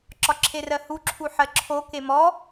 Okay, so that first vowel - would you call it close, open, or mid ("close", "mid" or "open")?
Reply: open